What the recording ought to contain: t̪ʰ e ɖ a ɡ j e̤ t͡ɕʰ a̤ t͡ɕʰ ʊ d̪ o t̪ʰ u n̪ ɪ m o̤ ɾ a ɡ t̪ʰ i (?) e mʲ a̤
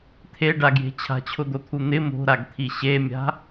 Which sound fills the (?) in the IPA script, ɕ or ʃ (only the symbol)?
ɕ